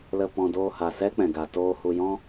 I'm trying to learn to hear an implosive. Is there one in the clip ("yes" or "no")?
no